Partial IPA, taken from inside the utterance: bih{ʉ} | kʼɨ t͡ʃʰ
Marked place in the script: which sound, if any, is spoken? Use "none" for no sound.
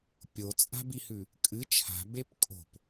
ʉ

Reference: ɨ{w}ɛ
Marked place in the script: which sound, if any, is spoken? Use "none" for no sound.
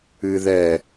ð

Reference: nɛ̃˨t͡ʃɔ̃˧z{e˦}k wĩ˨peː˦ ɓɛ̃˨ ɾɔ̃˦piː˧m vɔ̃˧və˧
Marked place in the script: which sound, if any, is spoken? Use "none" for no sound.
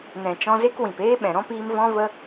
e˦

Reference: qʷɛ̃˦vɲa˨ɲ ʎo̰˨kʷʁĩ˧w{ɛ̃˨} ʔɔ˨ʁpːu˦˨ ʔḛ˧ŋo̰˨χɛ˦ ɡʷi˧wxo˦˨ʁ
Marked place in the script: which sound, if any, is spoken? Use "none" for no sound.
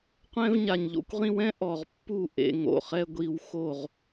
ɛ̃˦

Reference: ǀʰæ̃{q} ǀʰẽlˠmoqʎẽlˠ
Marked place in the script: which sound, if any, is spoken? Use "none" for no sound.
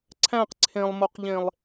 q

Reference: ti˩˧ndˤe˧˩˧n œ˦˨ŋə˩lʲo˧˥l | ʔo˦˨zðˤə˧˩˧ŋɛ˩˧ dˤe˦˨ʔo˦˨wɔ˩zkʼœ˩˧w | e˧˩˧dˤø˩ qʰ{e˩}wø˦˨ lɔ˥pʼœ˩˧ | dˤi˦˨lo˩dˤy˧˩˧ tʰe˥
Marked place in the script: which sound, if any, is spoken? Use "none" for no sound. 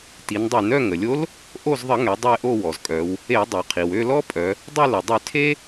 i˩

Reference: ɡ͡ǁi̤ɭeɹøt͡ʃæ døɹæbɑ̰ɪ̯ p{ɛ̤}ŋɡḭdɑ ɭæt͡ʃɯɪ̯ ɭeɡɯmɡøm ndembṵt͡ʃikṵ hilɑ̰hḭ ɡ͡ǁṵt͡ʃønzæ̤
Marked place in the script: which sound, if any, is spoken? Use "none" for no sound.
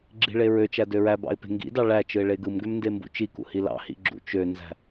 e̤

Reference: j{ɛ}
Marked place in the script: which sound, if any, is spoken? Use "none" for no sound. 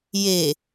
e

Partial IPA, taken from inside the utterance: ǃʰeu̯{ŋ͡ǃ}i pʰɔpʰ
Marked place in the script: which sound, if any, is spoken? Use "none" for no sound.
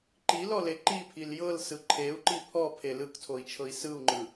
ǃ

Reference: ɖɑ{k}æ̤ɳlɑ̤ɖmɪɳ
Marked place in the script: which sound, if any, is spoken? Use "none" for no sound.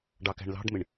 k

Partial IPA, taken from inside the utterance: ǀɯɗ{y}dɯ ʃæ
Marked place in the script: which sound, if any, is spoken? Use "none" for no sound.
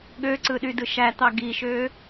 y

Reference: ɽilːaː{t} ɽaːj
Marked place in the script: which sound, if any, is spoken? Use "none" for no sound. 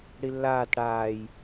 t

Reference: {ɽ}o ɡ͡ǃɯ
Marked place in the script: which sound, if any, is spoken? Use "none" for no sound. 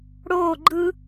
ɽ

